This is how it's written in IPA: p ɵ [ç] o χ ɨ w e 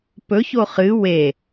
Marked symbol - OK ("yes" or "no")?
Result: yes